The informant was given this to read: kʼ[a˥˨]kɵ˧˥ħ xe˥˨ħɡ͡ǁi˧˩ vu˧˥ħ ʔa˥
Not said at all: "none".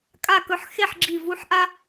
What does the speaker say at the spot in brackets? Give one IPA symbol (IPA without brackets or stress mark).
a˥˨